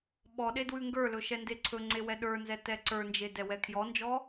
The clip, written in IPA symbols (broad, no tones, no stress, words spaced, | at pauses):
ɓɔɗe dwʉŋɡə˞lɵ ʃɛndeǀʰɵŋ͡ǀe wɛɗə˞nzɛ tɛǀə˞nd͡ʒe dɛwɛkʰjɔnd͡ʒɔ